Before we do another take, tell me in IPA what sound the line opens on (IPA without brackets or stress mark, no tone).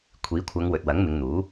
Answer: kʷʰ